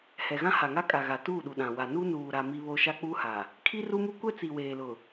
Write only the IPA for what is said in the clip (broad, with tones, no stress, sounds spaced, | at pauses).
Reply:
h ɛ˨ ɣ ã˦ h a˨ ŋ a˦ kʼ a˨ ɣ a˨ t uː˦˨ ɗ u˨ ɗ ã˨ w a˨ n u˦ n uː˨ ɾ a˨ m i˦ β o˦ ʃ a˦ k͡p uː˦ h a˨ | kʰ i˦ r u˦ m u˦ kʷ ɛ˦ t͡s i˨ w eː˨ l ʊ˨